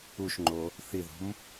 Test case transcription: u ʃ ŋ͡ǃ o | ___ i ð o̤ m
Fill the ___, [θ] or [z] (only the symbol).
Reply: θ